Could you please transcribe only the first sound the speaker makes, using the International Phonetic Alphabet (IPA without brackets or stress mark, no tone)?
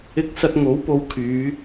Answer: ɪ